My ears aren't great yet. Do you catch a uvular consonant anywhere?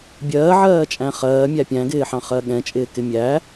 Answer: yes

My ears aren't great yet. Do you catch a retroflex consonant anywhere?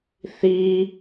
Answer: no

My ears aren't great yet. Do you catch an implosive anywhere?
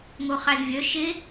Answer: no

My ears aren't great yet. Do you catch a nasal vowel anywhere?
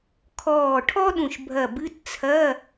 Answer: yes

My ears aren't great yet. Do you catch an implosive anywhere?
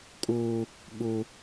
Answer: yes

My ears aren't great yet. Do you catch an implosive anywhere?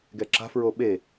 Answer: yes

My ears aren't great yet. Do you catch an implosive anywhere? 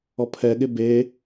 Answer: yes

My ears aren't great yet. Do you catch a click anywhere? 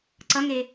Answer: yes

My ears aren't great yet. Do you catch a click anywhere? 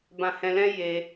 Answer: no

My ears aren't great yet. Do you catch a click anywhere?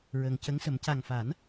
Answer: no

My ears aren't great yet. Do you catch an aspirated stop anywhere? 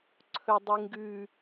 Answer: yes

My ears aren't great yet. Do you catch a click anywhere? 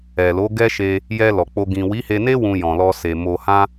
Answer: no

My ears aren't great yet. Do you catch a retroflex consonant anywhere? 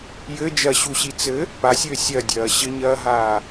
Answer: no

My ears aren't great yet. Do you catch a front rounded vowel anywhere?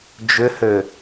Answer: yes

